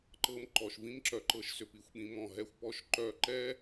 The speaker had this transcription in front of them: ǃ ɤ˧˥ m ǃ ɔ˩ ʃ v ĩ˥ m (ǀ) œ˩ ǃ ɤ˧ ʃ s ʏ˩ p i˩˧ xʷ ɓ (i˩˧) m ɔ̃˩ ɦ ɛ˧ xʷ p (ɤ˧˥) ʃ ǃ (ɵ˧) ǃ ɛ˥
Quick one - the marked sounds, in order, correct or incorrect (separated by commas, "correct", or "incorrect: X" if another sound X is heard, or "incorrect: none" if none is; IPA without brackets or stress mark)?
incorrect: ǁ, incorrect: ĩ˩˧, incorrect: ɔ˧˥, incorrect: œ˧